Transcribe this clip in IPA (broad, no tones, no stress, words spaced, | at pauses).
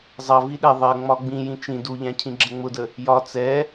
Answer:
zˤʌ viɗɛ ðˤɜ ŋ͡mɒɡ͡bĩjĩ t͡ʃĩ duʎæ̃cʰĩ ɡ͡ǁəŋ͡mʊdə | jɒ t͡sɛ